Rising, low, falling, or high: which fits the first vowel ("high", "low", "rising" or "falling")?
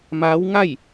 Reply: rising